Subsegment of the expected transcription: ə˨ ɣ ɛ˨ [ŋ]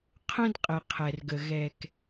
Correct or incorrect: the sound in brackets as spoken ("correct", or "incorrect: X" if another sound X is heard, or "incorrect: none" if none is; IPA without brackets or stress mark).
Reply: incorrect: k